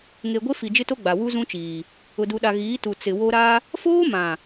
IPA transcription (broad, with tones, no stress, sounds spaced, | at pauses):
ŋ e˨ ɡʷ e˦ f i˨ d͡ʒ ɪ˦ t o˦ ɡ͡b a˨ w u˦ z ũ˦ t͡ʃ iː˨ | ʊ˨ d u˨ ɗ a˨ ɣ iː˨˦ t u˨ t͡s ɪ˨ w o˦ ɾ a˦ | f oː˦ m ã˨